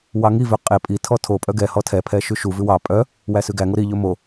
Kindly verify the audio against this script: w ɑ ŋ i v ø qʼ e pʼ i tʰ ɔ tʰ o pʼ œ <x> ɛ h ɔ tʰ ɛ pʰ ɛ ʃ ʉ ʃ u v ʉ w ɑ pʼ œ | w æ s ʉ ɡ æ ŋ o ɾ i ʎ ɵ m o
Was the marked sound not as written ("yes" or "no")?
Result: yes